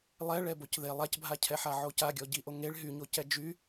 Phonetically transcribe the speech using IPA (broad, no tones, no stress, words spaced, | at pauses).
lˠɛ ɭɛbocðe lˠacbʱacʰɛħa ʕocaɡʲɔ ɟiʔo ŋeɭ ɦyɲocɛ d͡ʒy